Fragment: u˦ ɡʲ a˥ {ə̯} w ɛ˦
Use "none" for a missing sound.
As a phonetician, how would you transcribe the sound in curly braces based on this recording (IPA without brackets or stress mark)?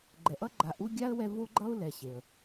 ə̯